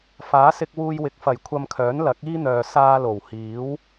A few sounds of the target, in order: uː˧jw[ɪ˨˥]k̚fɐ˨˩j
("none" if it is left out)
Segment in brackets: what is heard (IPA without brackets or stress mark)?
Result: ɪ˨˥